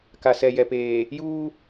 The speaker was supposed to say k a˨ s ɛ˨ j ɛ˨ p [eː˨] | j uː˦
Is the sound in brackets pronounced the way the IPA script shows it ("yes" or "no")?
yes